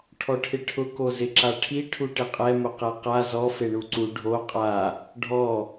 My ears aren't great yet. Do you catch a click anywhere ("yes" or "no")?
yes